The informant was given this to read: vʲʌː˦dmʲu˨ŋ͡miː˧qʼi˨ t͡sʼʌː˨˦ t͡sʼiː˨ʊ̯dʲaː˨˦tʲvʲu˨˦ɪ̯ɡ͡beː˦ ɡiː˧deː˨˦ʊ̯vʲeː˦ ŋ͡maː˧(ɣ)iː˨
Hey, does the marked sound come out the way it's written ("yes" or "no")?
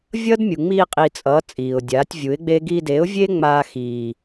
no